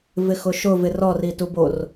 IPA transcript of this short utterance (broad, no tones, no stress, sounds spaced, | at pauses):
v ɪ x ʊ ʃ ʊ v ɪ r ɔ r i t u b o r